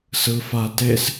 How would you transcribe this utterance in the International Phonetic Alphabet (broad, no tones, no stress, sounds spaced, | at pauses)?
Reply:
s ɯ f a t e s